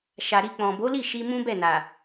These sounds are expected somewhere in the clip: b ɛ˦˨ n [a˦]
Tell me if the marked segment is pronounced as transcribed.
no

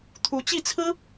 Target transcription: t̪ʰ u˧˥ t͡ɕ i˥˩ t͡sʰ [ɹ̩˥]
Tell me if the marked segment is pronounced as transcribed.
yes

